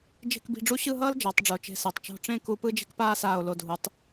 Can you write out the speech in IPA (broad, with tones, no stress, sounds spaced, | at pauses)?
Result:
d͡ʒ e̤˥˧ k b i̤˧ ɖ͡ʐ u˥ ɕ ɯ˥˧ ɦ ʌː˥ l d͡ʒ ʌː˩˧ tˤ ɖ͡ʐ o˩˧ t͡ʃ e̤˧˩ s e˩˧ tˤ t͡ʃ o̤˧ ʈ͡ʂ ẽ˥˧ k u˧ p ɯ˥ d͡ʒ e̤˥ k p aː˥ s aː˧˩ o̯ l o˧˩ dʱ u˩˧ tˤ